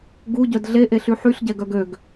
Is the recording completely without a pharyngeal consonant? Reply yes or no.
no